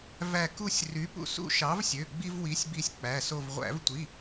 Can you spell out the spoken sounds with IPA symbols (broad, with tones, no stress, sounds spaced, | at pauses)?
v æ˦˨ k u˦˨ sʲ r y˨˥ p ṵ˦˨ s ṵ˦˨ ʃ ɑ˨˥ v sʲ ø˩˧˩ ɡ͡b i˦ v w i˨˥ sʲ b i˦˨ sʲ k͡p æ˩˧˩ s o˦˨ v ʁʷ æ̰˧˩˧ v tʷ i˩˧˩